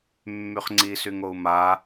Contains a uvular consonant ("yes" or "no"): yes